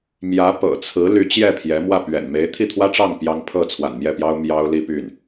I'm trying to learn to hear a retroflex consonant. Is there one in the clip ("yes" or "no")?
yes